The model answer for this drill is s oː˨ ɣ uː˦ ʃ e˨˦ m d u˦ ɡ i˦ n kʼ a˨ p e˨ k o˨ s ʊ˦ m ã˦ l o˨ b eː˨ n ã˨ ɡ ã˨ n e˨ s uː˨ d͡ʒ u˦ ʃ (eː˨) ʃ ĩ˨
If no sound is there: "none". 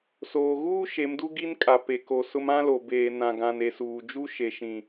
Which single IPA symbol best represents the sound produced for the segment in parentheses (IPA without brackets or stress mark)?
e˨